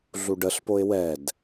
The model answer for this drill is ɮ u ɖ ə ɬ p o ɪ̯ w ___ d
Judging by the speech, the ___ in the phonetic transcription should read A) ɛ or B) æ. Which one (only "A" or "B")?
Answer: A